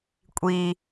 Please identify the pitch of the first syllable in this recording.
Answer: high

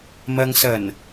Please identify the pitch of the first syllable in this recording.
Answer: low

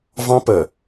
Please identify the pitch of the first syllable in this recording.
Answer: high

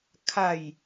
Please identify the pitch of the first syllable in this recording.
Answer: falling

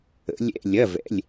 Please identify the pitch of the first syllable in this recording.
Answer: rising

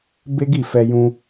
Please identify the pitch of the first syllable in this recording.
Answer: high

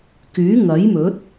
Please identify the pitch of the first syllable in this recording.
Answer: rising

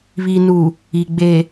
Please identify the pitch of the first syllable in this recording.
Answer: low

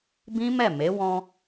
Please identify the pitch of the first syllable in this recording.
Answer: high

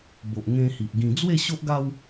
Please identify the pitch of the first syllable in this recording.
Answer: low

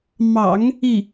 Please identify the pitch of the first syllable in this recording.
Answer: low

